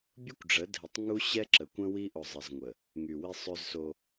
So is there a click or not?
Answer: yes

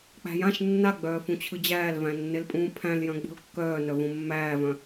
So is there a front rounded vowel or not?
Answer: yes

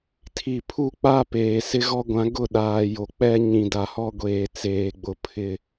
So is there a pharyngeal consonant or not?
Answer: no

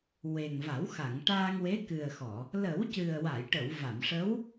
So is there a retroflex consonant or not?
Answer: yes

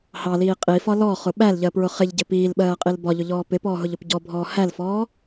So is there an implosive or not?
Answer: yes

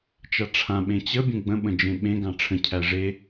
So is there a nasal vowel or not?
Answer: yes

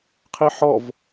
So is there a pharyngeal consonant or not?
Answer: yes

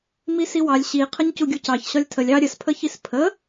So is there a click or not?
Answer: no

